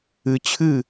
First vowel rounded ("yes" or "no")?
no